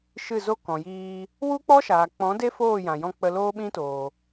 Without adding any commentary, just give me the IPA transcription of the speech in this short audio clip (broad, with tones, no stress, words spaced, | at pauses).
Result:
ʃɨ˦˨zo˦ kɔ̃˨jiː˧ | wu˦k͡pɔ˦ ʃaː˨k͡pɔ̃˨˦ de˦foː˦˨jã˨jɔ̃˧ k͡pə˧loː˦ɓĩ˦toː˨